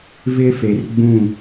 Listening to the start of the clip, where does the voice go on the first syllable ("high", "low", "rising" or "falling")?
high